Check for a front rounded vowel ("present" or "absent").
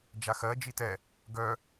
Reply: present